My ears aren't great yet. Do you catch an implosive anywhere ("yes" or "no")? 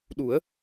yes